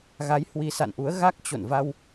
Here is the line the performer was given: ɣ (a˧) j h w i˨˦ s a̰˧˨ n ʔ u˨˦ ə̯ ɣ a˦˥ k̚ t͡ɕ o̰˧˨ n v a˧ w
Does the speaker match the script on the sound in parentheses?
no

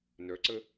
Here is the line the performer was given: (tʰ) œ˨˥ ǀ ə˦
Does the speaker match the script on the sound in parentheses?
no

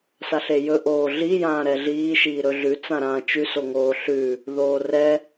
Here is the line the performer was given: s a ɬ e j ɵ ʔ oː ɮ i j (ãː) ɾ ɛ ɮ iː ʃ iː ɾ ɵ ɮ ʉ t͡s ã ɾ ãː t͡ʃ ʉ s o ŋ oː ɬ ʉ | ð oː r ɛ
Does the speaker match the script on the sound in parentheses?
yes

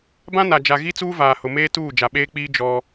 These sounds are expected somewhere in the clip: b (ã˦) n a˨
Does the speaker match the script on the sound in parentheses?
yes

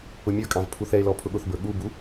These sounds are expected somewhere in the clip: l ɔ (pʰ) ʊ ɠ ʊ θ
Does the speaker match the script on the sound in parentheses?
yes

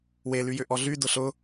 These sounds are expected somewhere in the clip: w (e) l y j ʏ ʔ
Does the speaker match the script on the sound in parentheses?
yes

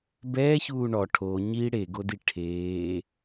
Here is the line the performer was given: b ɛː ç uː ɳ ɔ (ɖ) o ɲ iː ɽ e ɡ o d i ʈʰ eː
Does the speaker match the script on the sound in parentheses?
no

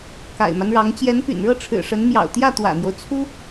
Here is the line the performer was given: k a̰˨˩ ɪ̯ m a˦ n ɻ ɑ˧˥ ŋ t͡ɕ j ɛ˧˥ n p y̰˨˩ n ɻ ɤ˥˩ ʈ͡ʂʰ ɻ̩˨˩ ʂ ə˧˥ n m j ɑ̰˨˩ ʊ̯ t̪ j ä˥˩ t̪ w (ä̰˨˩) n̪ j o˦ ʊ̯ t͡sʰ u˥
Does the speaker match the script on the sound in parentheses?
yes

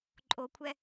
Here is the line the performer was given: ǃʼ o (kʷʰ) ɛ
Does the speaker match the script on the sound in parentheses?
yes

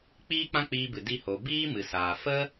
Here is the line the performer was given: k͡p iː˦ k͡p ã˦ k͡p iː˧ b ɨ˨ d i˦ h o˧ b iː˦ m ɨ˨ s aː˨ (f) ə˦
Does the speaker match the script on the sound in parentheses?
yes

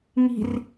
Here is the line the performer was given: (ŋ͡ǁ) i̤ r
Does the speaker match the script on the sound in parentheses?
no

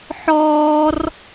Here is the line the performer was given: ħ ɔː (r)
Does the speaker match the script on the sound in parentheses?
yes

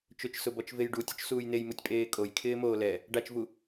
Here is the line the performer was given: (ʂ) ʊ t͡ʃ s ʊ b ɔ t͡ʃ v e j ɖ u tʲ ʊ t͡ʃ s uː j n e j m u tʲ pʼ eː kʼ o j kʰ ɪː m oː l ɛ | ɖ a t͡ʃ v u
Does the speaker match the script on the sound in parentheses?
no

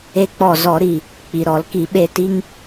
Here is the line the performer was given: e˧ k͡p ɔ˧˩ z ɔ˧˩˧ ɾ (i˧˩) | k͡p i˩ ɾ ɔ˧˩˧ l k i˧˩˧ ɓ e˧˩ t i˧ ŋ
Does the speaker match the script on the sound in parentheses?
yes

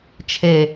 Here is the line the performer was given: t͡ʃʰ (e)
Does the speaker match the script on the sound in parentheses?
yes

